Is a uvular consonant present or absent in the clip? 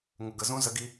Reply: absent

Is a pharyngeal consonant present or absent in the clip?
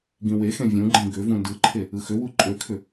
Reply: absent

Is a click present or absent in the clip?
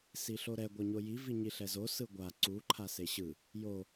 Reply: present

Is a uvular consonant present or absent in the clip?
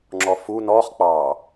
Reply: present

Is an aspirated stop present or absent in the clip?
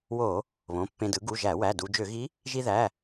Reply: absent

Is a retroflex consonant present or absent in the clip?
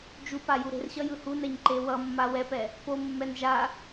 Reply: absent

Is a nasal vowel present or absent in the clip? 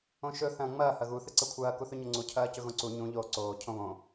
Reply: present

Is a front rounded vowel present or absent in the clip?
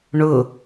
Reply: absent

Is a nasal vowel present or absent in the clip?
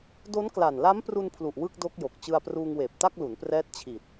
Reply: absent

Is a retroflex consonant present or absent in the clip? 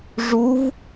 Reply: present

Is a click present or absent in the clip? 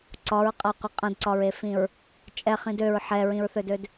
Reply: present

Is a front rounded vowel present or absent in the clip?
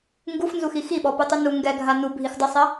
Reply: absent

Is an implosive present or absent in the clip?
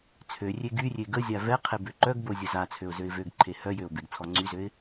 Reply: absent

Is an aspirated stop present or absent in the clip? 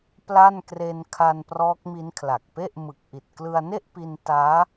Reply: present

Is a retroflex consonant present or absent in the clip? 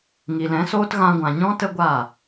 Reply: absent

